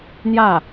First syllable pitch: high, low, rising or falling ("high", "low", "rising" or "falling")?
falling